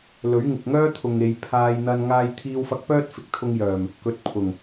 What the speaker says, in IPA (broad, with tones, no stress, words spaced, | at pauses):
lɵ˨˥ɥŋɪ˨k̚ŋœː˥t̪ʰʊ˨ŋ e˨˧j pʰaː˧jn̪ɐ˧n ŋaː˧jt̪ʰiː˧wfɐ˧k̚pœː˥t̚ fɪ˨k̚t̪ʰʊ˧ŋjœː˨˩m | kɵ˨˥t̚pʰʊ˨˩ŋ